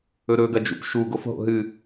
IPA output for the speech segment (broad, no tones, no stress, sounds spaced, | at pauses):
ɵ ɾ ɵ ɡ ɐ d͡ʒ ṵ p ʃ u ɡ o f ɦ o̰ ɦ ɨ